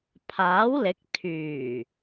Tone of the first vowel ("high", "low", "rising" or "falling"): rising